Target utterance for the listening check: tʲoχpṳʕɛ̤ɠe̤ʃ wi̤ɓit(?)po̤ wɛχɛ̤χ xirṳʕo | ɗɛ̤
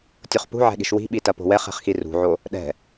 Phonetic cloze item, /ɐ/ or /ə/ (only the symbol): ɐ